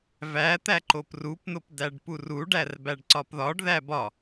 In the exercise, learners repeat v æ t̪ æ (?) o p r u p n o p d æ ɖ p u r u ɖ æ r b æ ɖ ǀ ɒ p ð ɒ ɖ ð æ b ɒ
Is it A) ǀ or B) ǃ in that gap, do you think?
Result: B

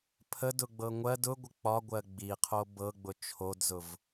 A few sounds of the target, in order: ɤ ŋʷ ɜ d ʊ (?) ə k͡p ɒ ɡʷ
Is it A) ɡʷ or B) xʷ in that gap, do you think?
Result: A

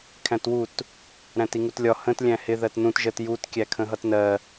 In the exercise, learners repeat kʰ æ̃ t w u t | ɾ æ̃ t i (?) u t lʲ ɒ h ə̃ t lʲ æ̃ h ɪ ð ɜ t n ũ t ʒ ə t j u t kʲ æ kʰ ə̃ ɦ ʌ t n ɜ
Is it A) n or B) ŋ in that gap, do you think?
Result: B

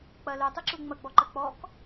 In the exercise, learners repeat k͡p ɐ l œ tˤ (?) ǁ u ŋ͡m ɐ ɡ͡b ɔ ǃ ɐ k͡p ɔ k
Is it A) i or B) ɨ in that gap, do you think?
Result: B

